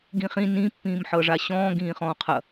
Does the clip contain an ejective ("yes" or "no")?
no